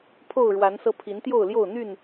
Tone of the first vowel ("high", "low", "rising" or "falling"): falling